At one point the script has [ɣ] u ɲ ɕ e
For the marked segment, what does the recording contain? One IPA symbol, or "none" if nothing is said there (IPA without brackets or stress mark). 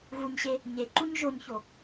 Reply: ɣ